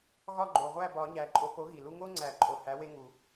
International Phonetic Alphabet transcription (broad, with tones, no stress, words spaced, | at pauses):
ɣɒ˥˨ɡ͡ǃo˨˩ʁʷæ˥˨ bɒ˨˩˦ɲæ˨˩ ǃʼo˨˥po˨˥ɣi˨˩lu˦ ŋo˦ŋ͡ǀæ˨˩˦ǃʼo˨˩ hæ˨˥we˦ ŋu˨˩˦